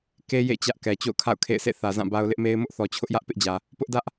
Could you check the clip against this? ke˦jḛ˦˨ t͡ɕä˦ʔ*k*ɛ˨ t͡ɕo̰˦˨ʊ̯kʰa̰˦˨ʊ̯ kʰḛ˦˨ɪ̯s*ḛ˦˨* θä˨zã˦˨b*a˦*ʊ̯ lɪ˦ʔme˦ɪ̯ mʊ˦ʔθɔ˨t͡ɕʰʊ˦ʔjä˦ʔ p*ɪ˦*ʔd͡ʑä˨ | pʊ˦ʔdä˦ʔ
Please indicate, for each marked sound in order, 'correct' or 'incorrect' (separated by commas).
correct, correct, correct, correct